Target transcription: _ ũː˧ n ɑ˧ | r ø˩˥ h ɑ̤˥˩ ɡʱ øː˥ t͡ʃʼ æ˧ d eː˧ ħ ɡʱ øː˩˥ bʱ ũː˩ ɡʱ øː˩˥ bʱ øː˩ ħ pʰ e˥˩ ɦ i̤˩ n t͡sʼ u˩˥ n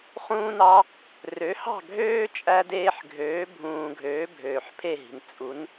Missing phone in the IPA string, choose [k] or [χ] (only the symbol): χ